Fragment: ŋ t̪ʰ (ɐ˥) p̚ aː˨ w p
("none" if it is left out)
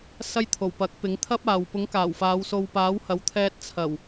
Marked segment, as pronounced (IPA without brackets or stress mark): ɐ˥